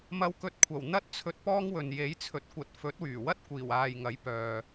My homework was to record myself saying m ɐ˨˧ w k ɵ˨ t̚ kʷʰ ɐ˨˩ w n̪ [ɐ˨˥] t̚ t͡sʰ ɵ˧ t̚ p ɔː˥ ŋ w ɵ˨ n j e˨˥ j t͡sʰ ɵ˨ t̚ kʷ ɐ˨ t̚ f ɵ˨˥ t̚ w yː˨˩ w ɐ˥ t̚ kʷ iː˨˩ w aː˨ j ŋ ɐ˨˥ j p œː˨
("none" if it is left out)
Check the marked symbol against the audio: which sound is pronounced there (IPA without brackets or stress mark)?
ɐ˥